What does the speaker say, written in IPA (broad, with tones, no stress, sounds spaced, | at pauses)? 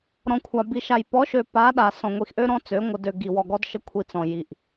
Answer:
ɾ ɔ̃˨ kʷʰ a˨ b i˨ ʃ a˨ j p ɔ˨˦ ʃ ø˨ p a˨˦ ɗ a˨ s ɔ̃˨ ŋʷ i˨ x ʔ ø˦ ɾ ɔ̃˦ t͡s ø˨˦ ŋʷ ə˨ d ø˨ ɡ i˨ w ɔ˨ ɡ ɔ˦ d ʃ ə˦ kʷʰ i˨ t͡s ɔ̃˨ j i˨ ʔ